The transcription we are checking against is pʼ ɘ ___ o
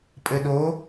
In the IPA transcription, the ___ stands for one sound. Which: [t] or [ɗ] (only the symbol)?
ɗ